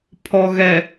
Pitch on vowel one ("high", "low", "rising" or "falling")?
low